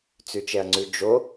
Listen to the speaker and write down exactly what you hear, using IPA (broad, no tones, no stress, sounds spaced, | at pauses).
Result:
t͡s ʉ t͡ʃ ɛ ɐ̯ ŋ͡ǀ ʉ d͡ʒ o